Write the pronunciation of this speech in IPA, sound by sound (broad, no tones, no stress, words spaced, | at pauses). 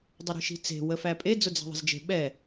dˤəɾi̤ʃi̤t͡se̤ wəfæpʼe d͡zʊd͡zæ̤ðˤə̤zd͡ʒe̤ ɓɛ